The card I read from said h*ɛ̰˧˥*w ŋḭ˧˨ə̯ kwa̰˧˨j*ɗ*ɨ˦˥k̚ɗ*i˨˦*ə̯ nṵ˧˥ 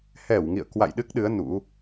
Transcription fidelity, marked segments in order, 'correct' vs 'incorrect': incorrect, correct, incorrect

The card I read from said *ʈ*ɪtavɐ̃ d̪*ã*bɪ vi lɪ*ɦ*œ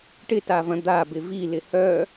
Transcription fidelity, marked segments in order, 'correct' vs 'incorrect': correct, incorrect, incorrect

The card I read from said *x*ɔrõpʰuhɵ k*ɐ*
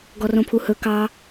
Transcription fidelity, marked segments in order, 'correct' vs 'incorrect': incorrect, incorrect

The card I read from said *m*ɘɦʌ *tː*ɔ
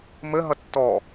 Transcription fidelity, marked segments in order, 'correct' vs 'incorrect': correct, correct

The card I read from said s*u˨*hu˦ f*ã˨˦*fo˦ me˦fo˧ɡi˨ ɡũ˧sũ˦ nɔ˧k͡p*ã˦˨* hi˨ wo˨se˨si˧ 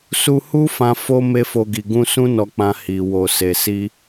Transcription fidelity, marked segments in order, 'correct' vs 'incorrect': incorrect, incorrect, incorrect

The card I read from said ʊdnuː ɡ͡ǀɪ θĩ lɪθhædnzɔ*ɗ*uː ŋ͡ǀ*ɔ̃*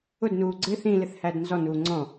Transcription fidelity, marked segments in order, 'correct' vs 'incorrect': incorrect, correct

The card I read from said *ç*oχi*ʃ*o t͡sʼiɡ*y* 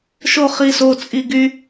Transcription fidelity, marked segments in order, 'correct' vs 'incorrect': incorrect, incorrect, correct

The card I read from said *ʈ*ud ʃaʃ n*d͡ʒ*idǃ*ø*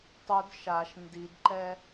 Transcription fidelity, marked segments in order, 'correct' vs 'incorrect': incorrect, incorrect, incorrect

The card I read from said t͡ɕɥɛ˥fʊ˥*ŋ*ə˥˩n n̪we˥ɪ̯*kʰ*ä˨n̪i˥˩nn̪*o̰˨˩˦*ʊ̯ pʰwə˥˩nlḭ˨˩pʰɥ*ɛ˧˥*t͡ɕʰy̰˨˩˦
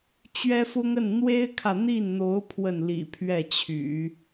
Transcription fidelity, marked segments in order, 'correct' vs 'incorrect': correct, correct, incorrect, incorrect

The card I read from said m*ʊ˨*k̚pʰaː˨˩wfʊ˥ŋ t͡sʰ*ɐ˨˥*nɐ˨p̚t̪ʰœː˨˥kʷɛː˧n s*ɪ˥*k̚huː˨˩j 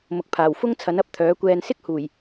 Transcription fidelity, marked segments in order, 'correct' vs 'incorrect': correct, correct, correct

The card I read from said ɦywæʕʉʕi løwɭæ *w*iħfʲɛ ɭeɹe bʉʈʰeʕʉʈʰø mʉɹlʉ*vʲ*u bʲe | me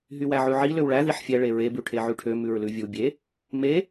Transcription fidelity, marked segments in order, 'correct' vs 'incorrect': incorrect, correct

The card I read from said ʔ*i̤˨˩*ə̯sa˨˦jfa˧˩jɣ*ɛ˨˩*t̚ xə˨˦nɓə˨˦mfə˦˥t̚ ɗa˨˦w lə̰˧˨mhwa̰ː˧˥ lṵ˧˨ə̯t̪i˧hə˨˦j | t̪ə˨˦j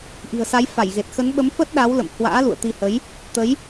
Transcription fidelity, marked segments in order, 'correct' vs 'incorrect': correct, incorrect

